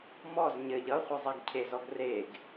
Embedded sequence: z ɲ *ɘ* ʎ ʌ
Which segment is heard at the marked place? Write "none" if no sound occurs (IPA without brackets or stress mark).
ɘ